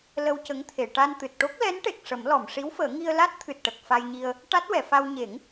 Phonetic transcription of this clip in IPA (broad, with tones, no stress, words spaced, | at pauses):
lə˧wcə˧˥ŋt̪ʰe˨˩˨ ʈa˧nt̪ɨ˨˩t̚ ʈo˦˥k̚lɛ˧˥nʈe˨˩k̚ ʂə˨˩˦mlɔ˨˩˨m ʂi˧˥wfəː˨˩˦ ŋi˧ə̯la˦˥t̚t̪ʰɨ˨˩t̚ʈə˨˩k̚ fa˧jɲi˧ə̯ | ʈa˦˥t̚wɛ˨˩˨fa˧w ɲe˨˩˦ŋ